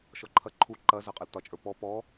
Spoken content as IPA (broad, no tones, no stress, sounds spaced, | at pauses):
ʃ ɔ ǃʰ ɐ ǃʰ u ǃ ɐ z ɐ qʼ ɐ l t ɒ t͡ʃʼ ə˞ p ɔ p ɔ